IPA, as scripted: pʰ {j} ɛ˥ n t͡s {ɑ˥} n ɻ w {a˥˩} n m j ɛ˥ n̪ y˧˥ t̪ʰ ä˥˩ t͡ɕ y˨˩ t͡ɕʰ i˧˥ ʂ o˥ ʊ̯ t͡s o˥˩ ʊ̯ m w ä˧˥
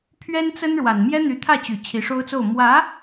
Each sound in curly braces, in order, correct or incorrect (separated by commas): incorrect, incorrect, incorrect